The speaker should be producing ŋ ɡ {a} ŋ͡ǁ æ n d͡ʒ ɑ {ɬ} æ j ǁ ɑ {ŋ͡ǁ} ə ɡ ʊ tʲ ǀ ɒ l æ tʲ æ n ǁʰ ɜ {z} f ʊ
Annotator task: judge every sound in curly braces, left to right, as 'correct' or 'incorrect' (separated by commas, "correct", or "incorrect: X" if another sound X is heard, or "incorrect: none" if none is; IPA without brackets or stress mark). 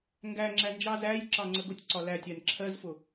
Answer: incorrect: æ, incorrect: z, incorrect: ŋ͡ǀ, correct